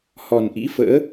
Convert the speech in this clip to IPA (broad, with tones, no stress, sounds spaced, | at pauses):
h ɔ˨˩ n ʔ ḭ˧˥ f ə̰ː˧˥